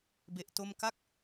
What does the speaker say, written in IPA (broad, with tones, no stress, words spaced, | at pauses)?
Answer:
be˦˥ʔto˥˩m ka˥˩k̚